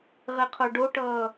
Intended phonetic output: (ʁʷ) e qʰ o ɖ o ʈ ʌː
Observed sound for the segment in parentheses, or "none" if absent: ʁ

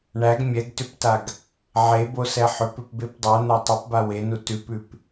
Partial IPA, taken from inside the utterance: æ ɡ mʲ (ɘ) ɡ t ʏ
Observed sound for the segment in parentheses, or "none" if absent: ɛ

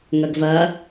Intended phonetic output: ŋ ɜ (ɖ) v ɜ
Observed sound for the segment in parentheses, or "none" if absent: ɡ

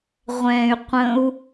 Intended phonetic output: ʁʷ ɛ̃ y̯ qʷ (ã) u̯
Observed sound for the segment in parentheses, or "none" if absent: ə̃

